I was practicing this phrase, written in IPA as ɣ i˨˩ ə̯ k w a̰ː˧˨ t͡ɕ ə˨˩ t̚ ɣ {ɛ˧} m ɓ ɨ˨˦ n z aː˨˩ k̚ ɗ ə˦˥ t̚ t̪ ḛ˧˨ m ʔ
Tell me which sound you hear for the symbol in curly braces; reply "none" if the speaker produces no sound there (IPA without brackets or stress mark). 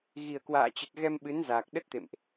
ɛ˧